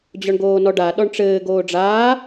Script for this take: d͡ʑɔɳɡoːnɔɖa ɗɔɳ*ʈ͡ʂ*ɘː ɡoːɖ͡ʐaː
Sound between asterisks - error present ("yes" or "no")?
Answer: no